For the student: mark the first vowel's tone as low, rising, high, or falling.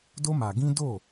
high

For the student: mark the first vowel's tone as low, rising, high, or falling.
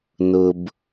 low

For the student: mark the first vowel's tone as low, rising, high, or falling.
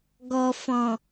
low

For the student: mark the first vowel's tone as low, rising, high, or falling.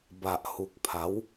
low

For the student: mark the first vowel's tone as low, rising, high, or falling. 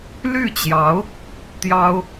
falling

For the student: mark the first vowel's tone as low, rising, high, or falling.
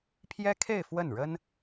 high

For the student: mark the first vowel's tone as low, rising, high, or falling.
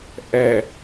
low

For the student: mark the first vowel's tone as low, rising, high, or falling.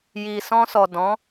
low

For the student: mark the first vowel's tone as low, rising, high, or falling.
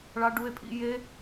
high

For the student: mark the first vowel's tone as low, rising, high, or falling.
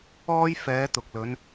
high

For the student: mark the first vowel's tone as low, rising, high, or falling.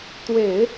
low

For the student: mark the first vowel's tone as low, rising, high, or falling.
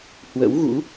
rising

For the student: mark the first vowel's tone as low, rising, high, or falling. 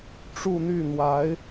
falling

